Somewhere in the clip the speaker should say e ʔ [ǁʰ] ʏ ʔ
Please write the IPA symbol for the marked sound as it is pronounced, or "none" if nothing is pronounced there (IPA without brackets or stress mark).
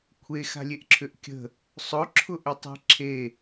ǁʰ